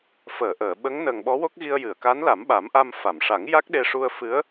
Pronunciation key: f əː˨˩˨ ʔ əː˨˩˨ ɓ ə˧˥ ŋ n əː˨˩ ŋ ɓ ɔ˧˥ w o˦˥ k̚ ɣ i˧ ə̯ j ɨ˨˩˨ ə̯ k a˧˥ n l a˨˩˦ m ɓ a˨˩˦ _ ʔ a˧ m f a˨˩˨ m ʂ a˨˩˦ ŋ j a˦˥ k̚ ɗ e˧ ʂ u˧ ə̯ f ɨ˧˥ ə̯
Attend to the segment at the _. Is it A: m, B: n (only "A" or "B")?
A